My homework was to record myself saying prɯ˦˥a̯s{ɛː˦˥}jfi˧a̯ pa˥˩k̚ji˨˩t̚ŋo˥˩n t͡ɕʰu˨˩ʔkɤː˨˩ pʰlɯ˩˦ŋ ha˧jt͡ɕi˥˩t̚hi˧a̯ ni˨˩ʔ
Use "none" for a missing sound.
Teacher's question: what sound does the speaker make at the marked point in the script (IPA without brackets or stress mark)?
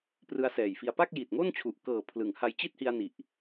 ɛː˨˩